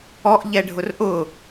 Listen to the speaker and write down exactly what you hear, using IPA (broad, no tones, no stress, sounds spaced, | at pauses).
ɔ ʔ ʎ ɛ ɖʱ ʊ r ʔ ʊ